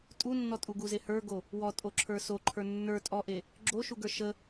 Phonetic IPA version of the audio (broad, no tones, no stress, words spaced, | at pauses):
tʼunːɔtʼuɡu zehə˞ɡo | wɔtʼoǁʰə˞ soǃʰə˞ nːə˞ tʼɔʔe | ɡ͡ǁoʃuɡə˞ ʃə